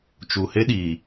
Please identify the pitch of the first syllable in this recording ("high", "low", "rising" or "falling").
low